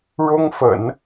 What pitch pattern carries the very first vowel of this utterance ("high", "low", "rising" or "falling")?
high